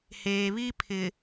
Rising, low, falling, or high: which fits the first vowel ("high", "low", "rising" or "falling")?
low